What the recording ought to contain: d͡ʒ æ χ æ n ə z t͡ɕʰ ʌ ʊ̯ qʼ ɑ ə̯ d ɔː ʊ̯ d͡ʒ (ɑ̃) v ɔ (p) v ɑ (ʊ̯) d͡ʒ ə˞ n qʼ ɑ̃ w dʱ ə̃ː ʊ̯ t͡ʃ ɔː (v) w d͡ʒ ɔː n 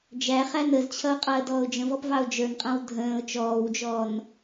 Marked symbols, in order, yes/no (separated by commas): no, yes, yes, no